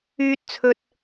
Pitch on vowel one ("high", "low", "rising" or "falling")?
high